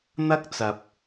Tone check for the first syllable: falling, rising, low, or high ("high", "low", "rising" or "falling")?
high